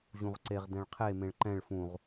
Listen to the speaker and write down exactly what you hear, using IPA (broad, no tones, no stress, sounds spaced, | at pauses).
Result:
ʑ ũ ʁ ǀ e ʁ d ɛ̃ ɭ qʰ e m ẽ ɭ ǃ ɛ̃ ɭ f ũ ʁ